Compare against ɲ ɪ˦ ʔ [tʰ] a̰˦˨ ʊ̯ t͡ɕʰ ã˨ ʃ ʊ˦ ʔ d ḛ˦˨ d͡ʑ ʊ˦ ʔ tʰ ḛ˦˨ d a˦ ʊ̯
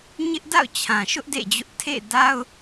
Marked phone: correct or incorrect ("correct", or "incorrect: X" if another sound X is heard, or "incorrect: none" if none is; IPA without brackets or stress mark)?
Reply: incorrect: d